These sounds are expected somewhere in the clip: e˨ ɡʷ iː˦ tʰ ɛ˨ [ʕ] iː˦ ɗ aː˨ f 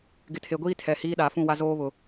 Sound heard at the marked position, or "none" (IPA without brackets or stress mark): h